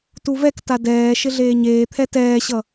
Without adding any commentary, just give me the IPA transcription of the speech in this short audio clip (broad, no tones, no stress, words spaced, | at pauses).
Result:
tuvɛkta dɛː ʃɪɮeːɲeːt̪ʰɛ tɛːɕʌ